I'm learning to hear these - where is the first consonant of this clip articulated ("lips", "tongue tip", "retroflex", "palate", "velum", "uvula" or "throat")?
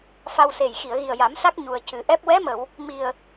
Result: lips